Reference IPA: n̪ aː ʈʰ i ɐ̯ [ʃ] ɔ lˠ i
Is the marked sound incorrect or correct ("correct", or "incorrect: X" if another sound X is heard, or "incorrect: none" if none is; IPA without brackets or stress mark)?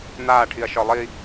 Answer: correct